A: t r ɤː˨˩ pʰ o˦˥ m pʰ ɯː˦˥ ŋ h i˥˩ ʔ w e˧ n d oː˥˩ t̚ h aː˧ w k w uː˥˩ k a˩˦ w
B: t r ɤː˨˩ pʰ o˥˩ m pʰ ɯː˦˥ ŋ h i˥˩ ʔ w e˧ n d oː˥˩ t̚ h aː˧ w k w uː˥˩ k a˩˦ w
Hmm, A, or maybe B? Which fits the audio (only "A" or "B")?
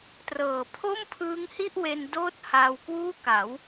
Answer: B